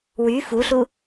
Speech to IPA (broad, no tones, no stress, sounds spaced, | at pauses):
w y f u ɬ u